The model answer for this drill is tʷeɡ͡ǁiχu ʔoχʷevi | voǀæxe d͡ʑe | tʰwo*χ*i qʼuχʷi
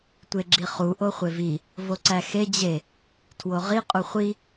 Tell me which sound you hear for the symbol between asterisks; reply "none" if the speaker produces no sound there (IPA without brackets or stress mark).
ʁ